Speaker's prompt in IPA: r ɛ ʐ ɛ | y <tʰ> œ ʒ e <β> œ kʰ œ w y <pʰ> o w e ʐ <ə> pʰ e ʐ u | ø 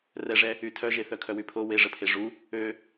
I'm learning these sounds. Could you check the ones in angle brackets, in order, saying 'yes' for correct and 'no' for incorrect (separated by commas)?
yes, no, yes, yes